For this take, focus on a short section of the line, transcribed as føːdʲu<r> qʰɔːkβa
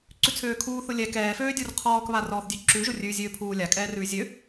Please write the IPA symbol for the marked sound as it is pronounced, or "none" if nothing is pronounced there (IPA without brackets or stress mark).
r